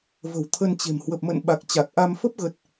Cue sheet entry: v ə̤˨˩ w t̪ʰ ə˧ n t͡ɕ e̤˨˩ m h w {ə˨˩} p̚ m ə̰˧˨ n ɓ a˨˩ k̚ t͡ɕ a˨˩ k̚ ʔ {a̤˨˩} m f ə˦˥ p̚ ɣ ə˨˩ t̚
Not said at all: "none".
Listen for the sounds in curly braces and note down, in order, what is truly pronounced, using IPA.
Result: ə˨˩, a˧

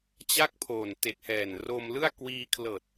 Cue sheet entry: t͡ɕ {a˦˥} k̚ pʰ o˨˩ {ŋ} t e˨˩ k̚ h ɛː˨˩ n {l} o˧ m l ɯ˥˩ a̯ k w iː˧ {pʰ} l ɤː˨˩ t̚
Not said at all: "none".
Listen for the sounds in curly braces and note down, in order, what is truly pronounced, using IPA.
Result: a˥˩, n, r, kʰ

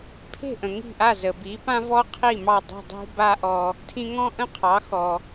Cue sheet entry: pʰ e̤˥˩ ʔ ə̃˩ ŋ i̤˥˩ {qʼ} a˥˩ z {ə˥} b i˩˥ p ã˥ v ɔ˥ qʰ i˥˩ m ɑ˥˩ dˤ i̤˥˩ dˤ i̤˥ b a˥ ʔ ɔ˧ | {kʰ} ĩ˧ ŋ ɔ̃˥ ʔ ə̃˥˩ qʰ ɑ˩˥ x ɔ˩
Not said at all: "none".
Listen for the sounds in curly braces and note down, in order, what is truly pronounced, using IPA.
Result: ʔ, ə˩, tʰ

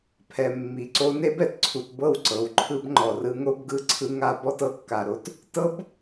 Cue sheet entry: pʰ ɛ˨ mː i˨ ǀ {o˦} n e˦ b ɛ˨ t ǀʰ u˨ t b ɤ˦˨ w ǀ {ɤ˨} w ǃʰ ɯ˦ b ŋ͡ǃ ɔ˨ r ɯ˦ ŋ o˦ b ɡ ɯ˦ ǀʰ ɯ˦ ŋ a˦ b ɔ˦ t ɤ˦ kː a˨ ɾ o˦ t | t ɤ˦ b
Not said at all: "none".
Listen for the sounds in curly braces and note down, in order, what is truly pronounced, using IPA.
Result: o˦, ɤ˨

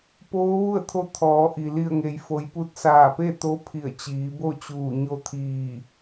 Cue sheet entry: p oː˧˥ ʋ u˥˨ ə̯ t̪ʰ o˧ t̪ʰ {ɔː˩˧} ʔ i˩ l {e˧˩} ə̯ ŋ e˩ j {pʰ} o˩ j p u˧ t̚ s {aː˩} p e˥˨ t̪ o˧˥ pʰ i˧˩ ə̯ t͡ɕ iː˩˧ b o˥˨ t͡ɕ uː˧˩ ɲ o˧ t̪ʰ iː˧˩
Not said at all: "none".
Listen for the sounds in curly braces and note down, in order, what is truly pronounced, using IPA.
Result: ɔː˩˧, i˧˩, f, aː˧˩

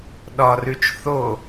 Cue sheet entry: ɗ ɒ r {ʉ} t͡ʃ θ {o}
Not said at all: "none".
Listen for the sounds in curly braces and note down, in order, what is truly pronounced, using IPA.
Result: ʉ, o

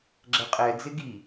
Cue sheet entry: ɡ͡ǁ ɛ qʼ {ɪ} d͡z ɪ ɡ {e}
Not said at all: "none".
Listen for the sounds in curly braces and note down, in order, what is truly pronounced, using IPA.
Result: ɛ, i

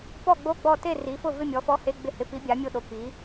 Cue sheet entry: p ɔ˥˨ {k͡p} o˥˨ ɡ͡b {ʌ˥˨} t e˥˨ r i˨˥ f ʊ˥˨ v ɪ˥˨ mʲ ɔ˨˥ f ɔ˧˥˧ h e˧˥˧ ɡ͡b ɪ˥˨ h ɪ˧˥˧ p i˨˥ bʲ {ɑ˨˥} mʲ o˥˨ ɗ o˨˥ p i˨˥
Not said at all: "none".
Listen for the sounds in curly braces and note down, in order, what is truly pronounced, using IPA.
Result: ɡ͡b, ɔ˥˨, a˨˥

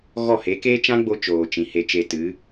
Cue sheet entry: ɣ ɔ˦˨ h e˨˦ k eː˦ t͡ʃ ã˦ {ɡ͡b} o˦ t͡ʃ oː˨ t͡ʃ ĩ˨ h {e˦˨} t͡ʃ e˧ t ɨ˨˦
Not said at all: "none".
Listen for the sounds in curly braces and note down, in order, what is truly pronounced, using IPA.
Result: ɡ͡b, e˧

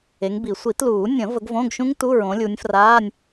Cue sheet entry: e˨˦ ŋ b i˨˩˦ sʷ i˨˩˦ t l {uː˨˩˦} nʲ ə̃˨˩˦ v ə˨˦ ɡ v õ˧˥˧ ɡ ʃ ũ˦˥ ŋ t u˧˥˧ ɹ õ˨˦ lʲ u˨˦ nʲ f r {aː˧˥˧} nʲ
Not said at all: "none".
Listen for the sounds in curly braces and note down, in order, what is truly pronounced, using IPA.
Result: uː˨˩˦, aː˧˥˧

